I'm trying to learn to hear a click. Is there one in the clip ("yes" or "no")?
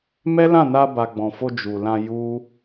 no